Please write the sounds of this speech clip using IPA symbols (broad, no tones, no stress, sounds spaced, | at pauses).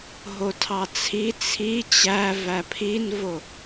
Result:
ɦ o tʰ ɑ t͡sʰ i t͡sʰ i t͡ɕ æ v æ pʰ i n v o